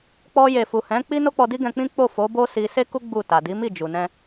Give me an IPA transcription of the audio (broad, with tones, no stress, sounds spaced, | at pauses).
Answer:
k͡p ɔ˧ j e˨ f u˨ h ɛ̃˨˦ k͡p i˦ n o˦ k͡p ɔ˧ d i˦ ɡ ɛ̃˧ k͡p ĩ˦ k͡p o˦˨ f o˨˦ b o˦ s i˧ s e˦ k u˦ ɡ͡b u˦˨ t a˨ d i˨˦ m i˦˨ d͡ʒ u˨ n ɛ̃˧